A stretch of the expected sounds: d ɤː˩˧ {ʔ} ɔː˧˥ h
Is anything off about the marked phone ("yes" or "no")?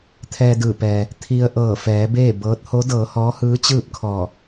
yes